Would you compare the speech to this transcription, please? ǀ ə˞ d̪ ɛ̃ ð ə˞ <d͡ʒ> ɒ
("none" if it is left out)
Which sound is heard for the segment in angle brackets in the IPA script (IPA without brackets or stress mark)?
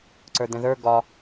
ɡ